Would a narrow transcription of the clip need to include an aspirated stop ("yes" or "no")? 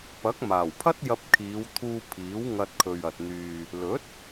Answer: yes